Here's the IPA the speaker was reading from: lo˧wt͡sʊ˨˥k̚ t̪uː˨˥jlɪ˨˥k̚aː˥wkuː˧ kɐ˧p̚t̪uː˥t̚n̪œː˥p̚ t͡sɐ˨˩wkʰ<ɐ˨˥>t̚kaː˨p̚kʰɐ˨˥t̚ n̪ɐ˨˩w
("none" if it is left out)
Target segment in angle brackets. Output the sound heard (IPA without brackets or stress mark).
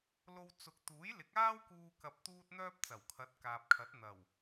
ɐ˨˥